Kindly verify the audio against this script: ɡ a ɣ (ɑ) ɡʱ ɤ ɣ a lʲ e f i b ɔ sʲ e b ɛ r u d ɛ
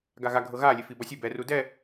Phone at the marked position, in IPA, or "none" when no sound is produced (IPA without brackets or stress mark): a